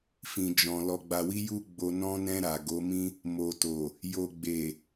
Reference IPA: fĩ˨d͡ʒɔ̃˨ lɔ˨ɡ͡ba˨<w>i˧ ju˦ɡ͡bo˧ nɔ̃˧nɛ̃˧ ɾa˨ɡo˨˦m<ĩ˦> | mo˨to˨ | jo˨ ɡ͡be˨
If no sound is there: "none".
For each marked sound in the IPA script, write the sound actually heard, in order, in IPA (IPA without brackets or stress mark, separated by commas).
w, ĩ˦